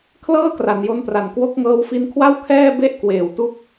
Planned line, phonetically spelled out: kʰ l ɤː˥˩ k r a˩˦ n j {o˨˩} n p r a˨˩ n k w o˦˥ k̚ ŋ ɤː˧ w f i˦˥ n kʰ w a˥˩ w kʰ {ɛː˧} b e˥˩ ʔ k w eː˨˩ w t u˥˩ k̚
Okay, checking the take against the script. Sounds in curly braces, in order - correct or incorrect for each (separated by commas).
incorrect, incorrect